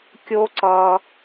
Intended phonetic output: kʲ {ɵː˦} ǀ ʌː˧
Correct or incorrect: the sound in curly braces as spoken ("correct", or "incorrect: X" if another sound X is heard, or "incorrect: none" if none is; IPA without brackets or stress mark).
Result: incorrect: oː˦